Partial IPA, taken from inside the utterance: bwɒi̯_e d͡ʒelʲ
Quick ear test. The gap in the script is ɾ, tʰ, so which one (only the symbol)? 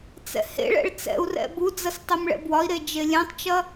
ɾ